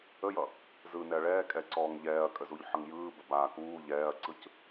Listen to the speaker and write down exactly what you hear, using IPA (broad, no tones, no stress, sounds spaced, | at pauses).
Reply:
ə j ʌ | z ɯ n ɛ ɐ̯ ɭ ɛː kʼ ɛ ǀ ɔː ŋ ʎ ɛː ɐ̯ kʼ ə z u ʎ ħ ʌ ŋ j ɯː b ə b aː k uː ʎ ɛː ɐ̯ ǀ ɯ c